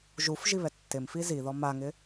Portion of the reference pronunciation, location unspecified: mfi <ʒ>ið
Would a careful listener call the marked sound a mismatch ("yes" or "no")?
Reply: yes